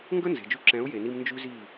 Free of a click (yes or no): no